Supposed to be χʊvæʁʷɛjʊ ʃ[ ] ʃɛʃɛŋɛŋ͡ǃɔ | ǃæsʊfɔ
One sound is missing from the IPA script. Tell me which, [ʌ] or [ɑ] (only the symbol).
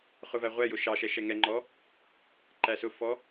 ɑ